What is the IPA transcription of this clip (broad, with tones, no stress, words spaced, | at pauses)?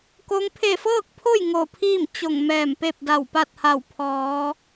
ko˧˥ŋ pʰe˧˩fɤː˥˨k̚pʰo˥˨j ŋo˧˩pʰiː˥˨m t͡ɕo˧˩ŋ mɛː˧˩mpe˥˨p̚da˧˩w pa˥˨t̚ha˧˩wpʰɔː˩˧